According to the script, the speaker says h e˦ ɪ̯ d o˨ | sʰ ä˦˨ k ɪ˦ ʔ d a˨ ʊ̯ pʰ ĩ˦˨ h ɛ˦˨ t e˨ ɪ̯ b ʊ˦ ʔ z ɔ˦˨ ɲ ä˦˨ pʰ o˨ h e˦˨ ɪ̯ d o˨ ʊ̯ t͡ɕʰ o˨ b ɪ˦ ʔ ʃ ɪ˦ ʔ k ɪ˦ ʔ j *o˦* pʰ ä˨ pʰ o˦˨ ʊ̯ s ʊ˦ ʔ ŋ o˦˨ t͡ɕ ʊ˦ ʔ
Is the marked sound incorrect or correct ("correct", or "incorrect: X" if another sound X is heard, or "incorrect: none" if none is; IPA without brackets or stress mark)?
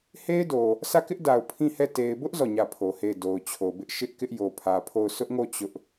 incorrect: o˨